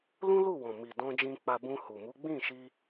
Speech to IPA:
lũ˦lu˦˨wɔ̃˨mi˨ dɔ̃˧d͡ʒĩ˧ k͡pa˧bũ˧hu˨ mu˨˦ɡ͡bĩ˦˨ʃi˧

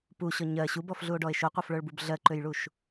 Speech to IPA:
puɕɔ ɲɜ ɕubɔfɮuo̯ɖɔe̯ ʃoqʷɜfɭə˞ɭbub ɮɜǃøjɭuʃ

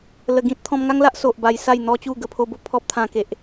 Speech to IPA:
lə˧ɡĩ˦t̚ t̪ʰɔ̃˧mŋa˦ŋla˦ʔ so˨ʔba˧jsa˥˧j n̪ɔ˦t͡ɕu˥˧ɡə˧ pʰo˧bo˥˧ pʰɔ˦p̚ t̪ʰã˧ke˨ʔ

